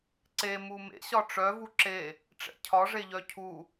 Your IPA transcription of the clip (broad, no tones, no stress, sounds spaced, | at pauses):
ǀ e m u m ḛ ɕ ɒ ʈ͡ʂ œ v u ǁ e | ʈ͡ʂ ɛ̰ cʰ ɒ ʐ e ʎ œ cʰ u